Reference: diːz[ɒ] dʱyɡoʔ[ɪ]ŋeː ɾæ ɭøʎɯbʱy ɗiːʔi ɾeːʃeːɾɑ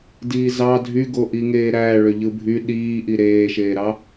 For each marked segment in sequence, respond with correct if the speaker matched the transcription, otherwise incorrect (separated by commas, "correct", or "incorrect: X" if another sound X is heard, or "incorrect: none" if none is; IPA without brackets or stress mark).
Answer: incorrect: ɑ, incorrect: i